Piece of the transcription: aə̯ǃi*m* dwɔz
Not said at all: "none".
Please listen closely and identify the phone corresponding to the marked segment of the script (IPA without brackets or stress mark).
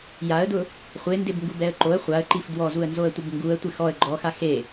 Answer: f